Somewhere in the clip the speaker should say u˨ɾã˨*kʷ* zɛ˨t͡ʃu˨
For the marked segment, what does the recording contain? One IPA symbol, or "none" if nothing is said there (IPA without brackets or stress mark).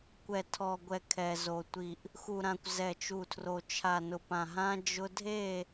kʷ